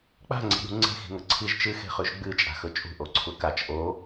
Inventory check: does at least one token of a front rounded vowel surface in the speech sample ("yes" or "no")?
no